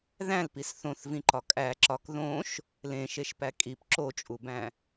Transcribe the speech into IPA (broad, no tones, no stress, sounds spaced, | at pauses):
ð æ̃ l p i s θ õ θ v ĩ ǃ ɒ kʼ æ ǁ ɒ k ð õ ʃ | l ẽ ʃ e ʃ p æ kʼ i p ǁ o t͡ʃʼ u b æ̃